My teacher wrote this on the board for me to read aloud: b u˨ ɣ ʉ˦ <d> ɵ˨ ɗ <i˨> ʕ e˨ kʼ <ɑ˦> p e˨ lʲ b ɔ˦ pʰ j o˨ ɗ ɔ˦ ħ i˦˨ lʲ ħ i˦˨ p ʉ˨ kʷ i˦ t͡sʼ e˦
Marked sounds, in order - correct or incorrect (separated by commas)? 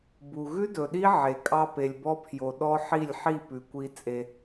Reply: correct, incorrect, correct